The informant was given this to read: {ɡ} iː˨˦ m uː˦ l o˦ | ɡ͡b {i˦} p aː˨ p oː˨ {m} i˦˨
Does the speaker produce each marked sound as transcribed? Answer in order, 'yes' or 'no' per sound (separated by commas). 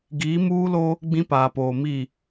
yes, no, yes